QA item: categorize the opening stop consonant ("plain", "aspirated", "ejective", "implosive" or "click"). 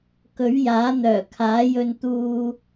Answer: plain